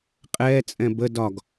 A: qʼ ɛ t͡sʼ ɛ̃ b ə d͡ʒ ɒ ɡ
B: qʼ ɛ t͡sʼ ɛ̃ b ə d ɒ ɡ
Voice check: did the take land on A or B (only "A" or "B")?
B